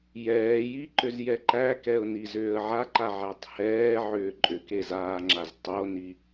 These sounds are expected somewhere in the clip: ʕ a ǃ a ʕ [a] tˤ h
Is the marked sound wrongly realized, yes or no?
yes